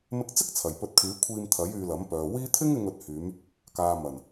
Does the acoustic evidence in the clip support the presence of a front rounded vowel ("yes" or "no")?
yes